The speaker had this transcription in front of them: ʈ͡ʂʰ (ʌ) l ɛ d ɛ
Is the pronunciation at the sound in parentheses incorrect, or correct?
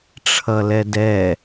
correct